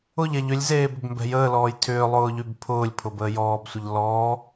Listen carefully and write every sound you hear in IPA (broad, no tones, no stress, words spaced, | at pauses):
ʊʎɛʎ ʏlʲzeː bʏbmbɛ̤jəːlɔːj tʰʏː lˠʊːʎybpʰʊːlʲpʰʊ bəːjɔːbsʷəʎ lɔː